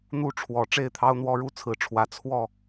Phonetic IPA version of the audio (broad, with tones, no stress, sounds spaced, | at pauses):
n̪ u˥˨ ʈ͡ʂʰ w ɔ˨˦ ʈ͡ʂ e˥˨ ɪ̯ t̪ʰ ɑ˦ ʊ̯ n̪ w ɔ˦ ɻ u˦ t͡sʰ ɹ̩˨˩ ʈ͡ʂʰ w ä˨˦ t͡sʰ w ɔ˥˨